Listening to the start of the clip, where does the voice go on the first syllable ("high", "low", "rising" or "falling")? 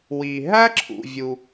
low